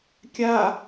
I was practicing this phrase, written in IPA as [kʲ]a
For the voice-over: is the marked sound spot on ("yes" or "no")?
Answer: yes